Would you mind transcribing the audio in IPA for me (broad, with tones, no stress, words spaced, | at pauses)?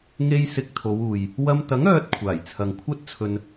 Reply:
ŋe˧j sɪ˧k̚t̪ʰo˨˧w uː˨j | wɐ˧m t̪ɐ˨˥ŋœː˨t̚ kʷʰaː˨˩j t͡sʰɐ˨ŋkʷʰɐ˥t̚t͡sʰɵ˧n